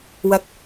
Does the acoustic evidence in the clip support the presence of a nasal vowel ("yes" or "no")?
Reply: no